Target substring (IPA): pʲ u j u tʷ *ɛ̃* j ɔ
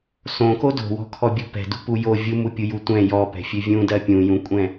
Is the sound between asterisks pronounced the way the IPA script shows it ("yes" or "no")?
yes